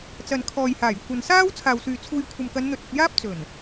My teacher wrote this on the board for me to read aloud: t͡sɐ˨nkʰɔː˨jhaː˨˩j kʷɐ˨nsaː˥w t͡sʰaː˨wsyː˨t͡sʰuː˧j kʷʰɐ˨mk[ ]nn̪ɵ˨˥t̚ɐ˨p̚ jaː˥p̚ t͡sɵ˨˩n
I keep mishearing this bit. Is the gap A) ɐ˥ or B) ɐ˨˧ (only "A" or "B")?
B